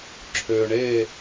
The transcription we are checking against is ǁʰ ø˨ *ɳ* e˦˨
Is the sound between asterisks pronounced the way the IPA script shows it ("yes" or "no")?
yes